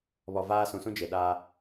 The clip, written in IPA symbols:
β ɔ˨ v aː˦ s ũ˨ s ũ˦ d͡ʒ e˨ ɗ aː˦

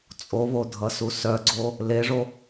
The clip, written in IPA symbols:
t͡sʼ o β o dʱ ʌ s u s œ ɡ͡ǀ o | l e ʐ o

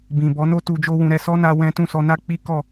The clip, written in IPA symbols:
b ĩ˨ b ɔ˨˦ n o˦ t u˧ d͡ʒ o˦ w ũ˧ ɾ ɛ˧ s ɔ˦ n a˧ w ɛ̃˦ t ũ˦˨ s ɔ˧ n a˦ k͡p i˦ k ɔ˦˨

